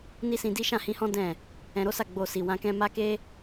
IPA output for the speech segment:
n i˦ s ĩ˧ d i˦ ʃ ã˦˨ h ĩ˧ h ɔ̃˦ d ɛ̃˦˨ | ɛ̃˧ ɾ o˦ s a˦˨ ɡ͡b o˧ s i˨ w ã˧ k ɛ̃˦ m a˦ k e˦

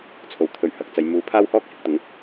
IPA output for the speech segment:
t͡sʰ o˨ w t̪ʰ ɵ˨˥ ɥ h ɐ˨ k̚ t͡s ɐ˨ j m uː˨˥ pʰ aː˥ w h ɔː˥ k̚ h ɪ˨˥ k̚ t̪ ʊ˨˧ ŋ

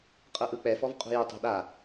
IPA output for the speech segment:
qʼ ɤ ʔ ɯ k͡p ɛ f ɔ v qʼ ṳ j u tˤ o̤ ɗ a

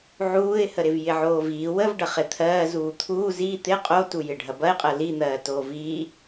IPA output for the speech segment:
ʕ uː ɪ̯ h ə ɾ ɪ v j ɪ ʕ oː v iː w ə v ɖ ɐ χ ɪ t̪ʰ ɜː z uː t̪ʰ uː z i t̪ ɪ qʼ o t u j ɪ ɖʱ ɐ b ɐ ɪ̯ qʼ ɜ l i n̪ ɜː t oː v iː

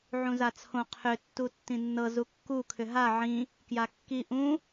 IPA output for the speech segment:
ʕ ũ z a t͡sʰ õ qʰ ʏ tː u tː ĩ nː ɤ z u kː u kʰ ʏ ɦ a ʕ ĩ | k j a kː i ʔ ũ

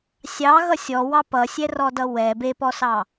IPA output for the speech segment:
sʲ ɑ ɣ ʌ sʲ ɔ w ɑ p ʌ sʲ ɛ r ɔ d ʌ w ɛ b e p ɔ s ɑ

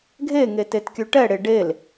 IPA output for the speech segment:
ɡʱ e ŋ e t e t kʲ ʉ ʈ ɛ ɽ e ɖ e l

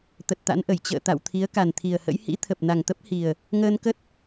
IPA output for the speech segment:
t̪ ə˨˩ t̚ t̪ a̰˧˥ n ʔ ə˧˩ j t͡ɕ ə̰ː˧˨ t̪ a̰˧˨ w t̪ʰ i˨˦ ə̯ k a˨˩ n t̪ʰ i˨˩ ə̯ h ə̰˧˥ j h ḭ˧˥ t̪ʰ ə˨˩ p̚ n a˨˩ ŋ t̪ ə˦˥ p̚ h i˨˩ ə̯ | ŋ əː˧ n k ə˦˥ t̚

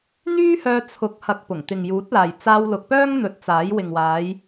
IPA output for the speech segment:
n̪ yː˥ h œː˧ t͡sʰ ʊ˨˥ k̚ h ɐ˧ k̚ p ʊ˨˩ ŋ t̪ ɪ˨ ŋ j uː˨˥ t̚ l aː˨ j t͡s aː˧ w l ʊ˨˥ k̚ p œː˥ ŋ n̪ ɵ˨˥ t̚ t͡s aː˨˥ j w ɪ˨ ŋ w aː˨˧ j

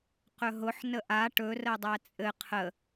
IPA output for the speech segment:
q ɵ ɦ ʊ ħ n ə ʔ a ʈ ɵ r ə dˤ æ t͡sʼ ɘ qʰ ə

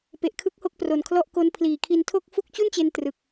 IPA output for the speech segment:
p e˨˩ ʔ kʰ ɯ˦˥ k̚ h o˥˩ k̚ p r o˨˩ n kʰ l ɔ˥˩ ʔ k o˦˥ n pʰ l iː˨˩ kʰ i˧ n tʰ o˥˩ k̚ f u˥˩ k̚ t͡ɕ u˥˩ n t͡ɕ e˧ n t r ɯ˨˩ k̚

